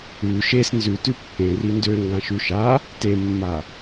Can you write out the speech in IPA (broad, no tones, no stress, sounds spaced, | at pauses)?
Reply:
ʉ ʃ e s n z ʉ t ʉ pː ẽ r i n d ø ŋ ɡ ã ʃ ʉ ʃ a | t e mː a